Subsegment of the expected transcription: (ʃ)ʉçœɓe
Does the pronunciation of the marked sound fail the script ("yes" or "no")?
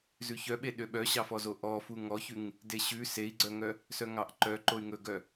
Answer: yes